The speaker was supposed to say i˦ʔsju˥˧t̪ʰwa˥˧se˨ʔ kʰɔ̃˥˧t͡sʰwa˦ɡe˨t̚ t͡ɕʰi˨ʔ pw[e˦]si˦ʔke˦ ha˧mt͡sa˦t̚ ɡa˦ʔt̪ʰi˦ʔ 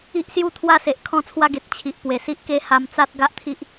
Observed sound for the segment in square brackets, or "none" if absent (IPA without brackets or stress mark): e˨˩